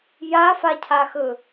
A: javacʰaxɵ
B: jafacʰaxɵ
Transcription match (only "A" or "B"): B